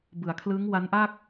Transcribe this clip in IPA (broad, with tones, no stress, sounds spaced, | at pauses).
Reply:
b ɯ˩˦ a̯ kʰ l ɯː˦˥ ŋ w a˦˥ n ʔ a˥˩ k̚